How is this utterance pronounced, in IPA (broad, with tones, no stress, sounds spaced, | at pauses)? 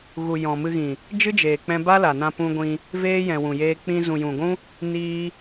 ɣ u˨ j ɔ̃˨ m ɨ˧ ɣ ĩ˨ | d͡ʒ ɨ˦ d͡ʒ eː˨ k͡p ɛ̃˧ b a˦ l a˨ n ã˧ p ũ˧ ɡʷ ĩ˧ | v eː˦ j ɛ̃˨ w ũ˨ j eː˧ k͡p ĩ˧ z ũ˨ j ũ˨ ɡʷ ũ˦ | n iː˦